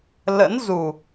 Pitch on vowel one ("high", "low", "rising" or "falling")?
rising